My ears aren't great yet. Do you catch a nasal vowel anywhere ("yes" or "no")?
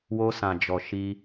yes